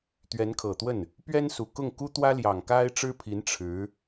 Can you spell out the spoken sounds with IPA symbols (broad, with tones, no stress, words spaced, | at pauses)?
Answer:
t̪ɥɛ˧˥nkʰɤ˨˩t̪wə˥˩n | pɥɛ˥nsu˨˩kʊ˥˩ŋ ku˥t̪wä˥ljɑ˨˩ŋ ka˥ɪ̯ʈ͡ʂɻ̩˥pʰi˧˥n ʈ͡ʂʰɻ̩˧˥